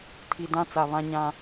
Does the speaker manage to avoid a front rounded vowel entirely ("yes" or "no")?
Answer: yes